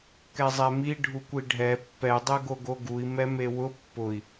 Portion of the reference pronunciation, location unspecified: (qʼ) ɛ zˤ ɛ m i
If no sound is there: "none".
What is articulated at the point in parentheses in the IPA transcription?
k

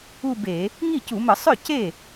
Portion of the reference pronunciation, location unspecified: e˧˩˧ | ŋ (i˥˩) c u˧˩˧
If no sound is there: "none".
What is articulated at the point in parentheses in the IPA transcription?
i˥˩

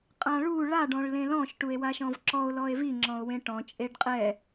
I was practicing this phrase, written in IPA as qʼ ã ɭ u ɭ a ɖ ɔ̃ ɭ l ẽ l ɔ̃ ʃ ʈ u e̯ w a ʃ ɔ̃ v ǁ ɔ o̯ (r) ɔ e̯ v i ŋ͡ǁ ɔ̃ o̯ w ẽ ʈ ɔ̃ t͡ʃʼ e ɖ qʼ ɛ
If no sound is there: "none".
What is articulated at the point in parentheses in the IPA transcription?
l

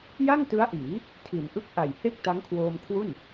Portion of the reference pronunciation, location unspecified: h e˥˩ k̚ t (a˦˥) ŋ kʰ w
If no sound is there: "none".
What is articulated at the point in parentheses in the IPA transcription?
a˦˥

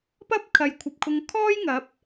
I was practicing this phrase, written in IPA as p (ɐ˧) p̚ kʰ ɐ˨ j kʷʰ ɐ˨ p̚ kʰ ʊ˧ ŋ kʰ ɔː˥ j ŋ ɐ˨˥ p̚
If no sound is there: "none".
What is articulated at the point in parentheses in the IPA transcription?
ɐ˥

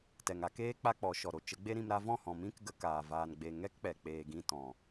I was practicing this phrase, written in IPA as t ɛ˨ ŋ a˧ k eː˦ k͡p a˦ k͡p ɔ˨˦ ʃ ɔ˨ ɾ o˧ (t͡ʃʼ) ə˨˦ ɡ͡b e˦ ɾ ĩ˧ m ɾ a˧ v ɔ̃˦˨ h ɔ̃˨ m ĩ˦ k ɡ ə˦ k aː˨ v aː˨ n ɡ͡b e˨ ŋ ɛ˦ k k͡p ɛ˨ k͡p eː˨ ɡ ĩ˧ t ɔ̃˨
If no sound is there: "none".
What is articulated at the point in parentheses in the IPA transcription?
t͡ʃ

